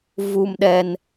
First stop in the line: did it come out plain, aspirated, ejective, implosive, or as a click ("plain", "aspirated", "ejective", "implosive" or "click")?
implosive